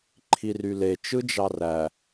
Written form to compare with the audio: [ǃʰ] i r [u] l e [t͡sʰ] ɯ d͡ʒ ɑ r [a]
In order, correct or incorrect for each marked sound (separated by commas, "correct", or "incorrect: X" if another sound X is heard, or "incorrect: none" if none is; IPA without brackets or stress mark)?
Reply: correct, incorrect: y, incorrect: t͡ʃ, incorrect: æ